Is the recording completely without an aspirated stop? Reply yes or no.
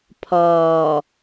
no